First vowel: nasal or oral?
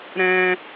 nasal